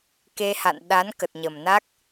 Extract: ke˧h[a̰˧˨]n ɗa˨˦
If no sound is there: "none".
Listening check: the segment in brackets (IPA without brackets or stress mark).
a̰˧˨